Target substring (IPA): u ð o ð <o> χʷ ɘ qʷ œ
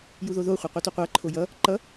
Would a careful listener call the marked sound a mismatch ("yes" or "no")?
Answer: no